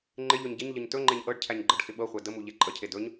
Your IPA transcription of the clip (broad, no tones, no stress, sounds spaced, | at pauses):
ŋ͡ǃ ɪ ʎ ɵ ɲ ɟ ɪ ɲ ʎ ə ɲ t ɵ ŋ͡ǃ e ɲ ʔ ɤ ɖ cʰ æ ɲ ɡ͡ǃ ɤ ɖ x ɪ ɓ ɤ χʷ æ d ə m u ʎ e ǃʼ ə cʰ e d ɵ ɲ